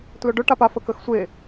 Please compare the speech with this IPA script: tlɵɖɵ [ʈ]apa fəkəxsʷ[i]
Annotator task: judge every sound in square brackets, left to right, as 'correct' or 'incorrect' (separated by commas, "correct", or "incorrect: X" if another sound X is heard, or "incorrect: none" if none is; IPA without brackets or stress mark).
correct, incorrect: e